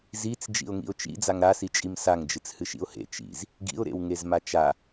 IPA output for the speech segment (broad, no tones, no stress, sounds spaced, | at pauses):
z i t͡s d͡ʒ ḭ ʊ̯ ŋ ḭ ʊ̯ t͡ʃ ḭ d͡z a ŋ ɾ a s i t͡ʃʼ i m s a ŋ d͡ʒ ɨ t͡s h ɨ ʃ ḭ ʊ̯ h ḛ t͡ʃ ḭ z | ɡ ḭ ʊ̯ ɾ ḛ w ŋ e z m a t͡ʃ a